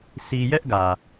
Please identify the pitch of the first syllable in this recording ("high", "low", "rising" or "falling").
high